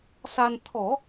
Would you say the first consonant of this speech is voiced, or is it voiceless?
voiceless